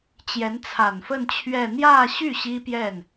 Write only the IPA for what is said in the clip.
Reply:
t͡ɕ j ɛ˧˥ n t͡sʰ a˨˩ n f ə˥˧ n t͡ɕʰ ɥ ɛ˥˧ n̪ j ä˥˧ ɕ y˥˩ ɕ i˥ p j ɛ˥˩ n

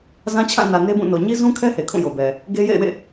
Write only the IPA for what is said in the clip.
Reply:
z ã˦ t͡ɕʰ ã˦˨ n ä˨ n e˦ b ũ˦˨ n o˨ ɲ i˦ z ũ˦ kʰ ɛ˦ h e˨ kʰ ũ˦˨ j o˨ b ɛ˨ | ɡ e˦ j ḛ˦˨ ɪ̯ w ḛ˦˨

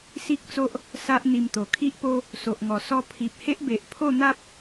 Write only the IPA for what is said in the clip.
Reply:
s i˦ k̚ t͡s o˦ ʔ | s a˦ ʔ n̪ i˧ m t̪ o˨˩ kʰ i˦ ʔ p o˦ | s o˨ ʔ ŋ ɔ˨˩ s ɔ˧ pʰ i˨ p̚ h e˦ ʔ b e˨ ʔ pʰ o˥˧ n̪ a˦ p̚

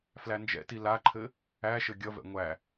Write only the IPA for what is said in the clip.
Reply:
f l æ n d͡ʒ ɛ̰ t i l a ǃʰ ɘ | æ ʃ ɘ ɡʲ ʌ v ɛ̰ ŋʷ æ

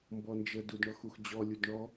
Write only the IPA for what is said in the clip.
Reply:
m b ɔ n d͡ʒ ə d u d ɳ ɔ x u x d͡ʑ ɔ lʲ u d ɳ ɔ

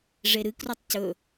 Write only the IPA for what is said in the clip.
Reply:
ʐ e ɾ ɨ k r u tˤ c ɵ

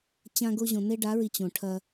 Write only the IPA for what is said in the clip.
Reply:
t͡ɕ ã˦ ɡ o˦ ʑ õ˨ n e˦ ɖ a˨˦ ɹ i˨ t͡ɕ õ˨ ʈʰ ɐ˦

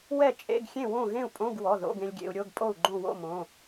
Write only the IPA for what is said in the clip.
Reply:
w ɛ˥˨ t͡ʃʼ ḛ˧˥˧ ɡ xʲ ẽ˥˨ w õ˥˨ ɣ ẽ˥˨ u̯ pʼ õ˧˥˧ ɡ w ɔ˩˧˩ ð o̰˧˥˧ ɡ ẽ˧ lʲ ɡʲ ḛ˧ u̯ ɾʲ o˧˥˧ ɡ pʼ o˥˨ u̯ ɡ͡ǃ õ˥˨ w o̰˥˨ m õ˩˧˩

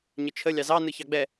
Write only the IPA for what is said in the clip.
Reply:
ɲ ə t͡ʃʰ ə lʲ ɑ z ɑ n ɯ ç ɑ ɡ͡b ɛ

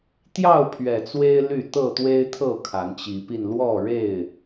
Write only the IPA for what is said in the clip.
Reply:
t̪ j ɑ˥˨ ʊ̯ pʰ ɥ ɛ˨˩ t͡s w e˦ ɪ̯ l y˥˨ t̪ ɤ˥˨ t̪ w e˦ ɪ̯ t̪ʰ ɤ˥˨ kʰ a˨˦ n t͡ɕ i˨˦ p i˧ n l w ɔ˥˨ ɻ e˥˨ ɪ̯

